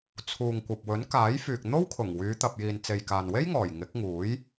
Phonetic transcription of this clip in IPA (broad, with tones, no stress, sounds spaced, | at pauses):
t͡sʰ uː˨ ŋ kʷ ɐ˨ p̚ w ɵ˨˥ n k aː˨˥ j f yː˨ k̚ n̪ o˥ w kʰ ʊ˨˩ ŋ w yː˨˧ t̪ ɐ˨ p̚ j iː˨ n t͡s e˨ j k aː˨ n w e˥ j ŋ ɔː˨˩ j ŋ ɪ˨˥ k̚ ŋ uː˨˥ j